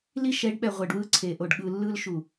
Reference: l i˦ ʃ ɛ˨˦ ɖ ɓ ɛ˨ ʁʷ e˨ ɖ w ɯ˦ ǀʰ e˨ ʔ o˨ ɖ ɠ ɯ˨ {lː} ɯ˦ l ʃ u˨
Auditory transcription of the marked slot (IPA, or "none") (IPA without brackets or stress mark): lː